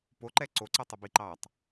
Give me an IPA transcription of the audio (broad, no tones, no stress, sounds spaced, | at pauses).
p o ǃ ɛ ǀ o ǀ ɯ tˤ e b i ǃ ɑ tˤ